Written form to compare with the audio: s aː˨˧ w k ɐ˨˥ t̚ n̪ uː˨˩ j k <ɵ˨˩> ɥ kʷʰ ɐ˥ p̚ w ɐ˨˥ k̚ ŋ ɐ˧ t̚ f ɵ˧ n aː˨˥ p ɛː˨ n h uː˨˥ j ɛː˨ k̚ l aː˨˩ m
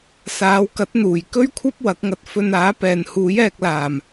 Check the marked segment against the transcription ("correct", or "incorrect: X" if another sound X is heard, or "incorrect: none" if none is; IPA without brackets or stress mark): incorrect: ɵ˥